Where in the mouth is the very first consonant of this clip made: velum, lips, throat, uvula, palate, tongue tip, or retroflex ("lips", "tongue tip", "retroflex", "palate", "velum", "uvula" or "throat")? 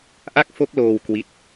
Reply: throat